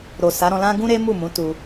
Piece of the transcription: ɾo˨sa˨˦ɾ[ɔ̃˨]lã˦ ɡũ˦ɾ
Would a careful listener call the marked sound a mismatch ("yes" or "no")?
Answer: yes